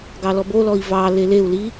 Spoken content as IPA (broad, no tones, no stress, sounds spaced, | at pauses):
ɡ ɑ l ɔ b o l ɔ i̯ v ɑ l e l e u̯ l i